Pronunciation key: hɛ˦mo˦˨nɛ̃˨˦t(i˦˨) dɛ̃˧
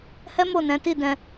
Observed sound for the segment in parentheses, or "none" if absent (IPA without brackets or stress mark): i˦˨